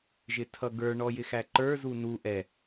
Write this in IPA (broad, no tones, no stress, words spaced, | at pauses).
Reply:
ʒɪtʰʌɡə˞ ɳɔjɪxæǃə˞ zunu ʔɛ